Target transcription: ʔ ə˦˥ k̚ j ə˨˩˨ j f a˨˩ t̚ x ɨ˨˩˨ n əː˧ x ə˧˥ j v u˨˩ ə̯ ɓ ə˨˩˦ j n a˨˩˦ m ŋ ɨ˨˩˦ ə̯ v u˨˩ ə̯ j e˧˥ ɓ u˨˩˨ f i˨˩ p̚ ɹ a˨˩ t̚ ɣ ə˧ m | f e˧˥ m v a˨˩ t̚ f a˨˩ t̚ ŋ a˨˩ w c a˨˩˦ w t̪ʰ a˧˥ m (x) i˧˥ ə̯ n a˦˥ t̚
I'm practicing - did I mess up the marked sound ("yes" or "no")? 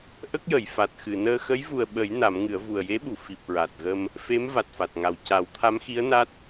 no